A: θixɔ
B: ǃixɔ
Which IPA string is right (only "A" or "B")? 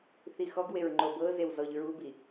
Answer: A